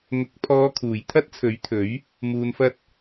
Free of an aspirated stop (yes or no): no